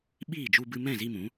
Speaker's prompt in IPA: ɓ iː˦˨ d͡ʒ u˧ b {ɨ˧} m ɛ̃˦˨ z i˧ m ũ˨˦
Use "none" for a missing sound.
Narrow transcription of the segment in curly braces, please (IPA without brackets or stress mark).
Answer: ɨ˧